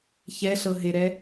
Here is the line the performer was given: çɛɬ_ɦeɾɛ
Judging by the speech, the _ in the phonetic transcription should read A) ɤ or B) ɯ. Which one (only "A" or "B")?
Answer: A